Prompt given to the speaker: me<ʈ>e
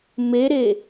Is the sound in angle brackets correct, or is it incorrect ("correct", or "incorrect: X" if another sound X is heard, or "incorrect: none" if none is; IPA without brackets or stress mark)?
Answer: incorrect: ɾ